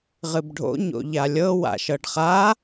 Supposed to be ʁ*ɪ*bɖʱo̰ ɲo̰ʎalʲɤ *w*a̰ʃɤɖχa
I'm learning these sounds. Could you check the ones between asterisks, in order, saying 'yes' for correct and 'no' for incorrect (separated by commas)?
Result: no, yes